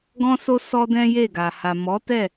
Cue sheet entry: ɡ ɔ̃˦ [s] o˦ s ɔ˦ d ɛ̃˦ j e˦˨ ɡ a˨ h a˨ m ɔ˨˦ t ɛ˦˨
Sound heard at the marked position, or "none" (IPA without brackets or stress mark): s